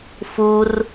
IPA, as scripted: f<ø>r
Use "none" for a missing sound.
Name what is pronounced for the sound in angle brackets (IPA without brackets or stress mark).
u